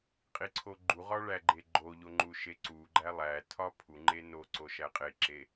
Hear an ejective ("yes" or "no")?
yes